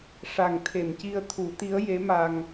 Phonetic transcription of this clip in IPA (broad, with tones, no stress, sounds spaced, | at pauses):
ʂ a˨˩ ŋ t̪ʰ e˨˩˨ m c i˧ ə̯ t̪ʰ u˨˩˦ t̪ i˧˥ ə̯ j e˧˥ m a˧ ŋ